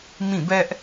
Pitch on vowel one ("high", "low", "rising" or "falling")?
falling